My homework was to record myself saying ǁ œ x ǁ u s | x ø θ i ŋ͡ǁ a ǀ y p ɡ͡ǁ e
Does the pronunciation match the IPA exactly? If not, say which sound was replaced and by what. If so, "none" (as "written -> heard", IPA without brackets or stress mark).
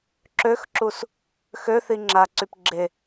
œ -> ø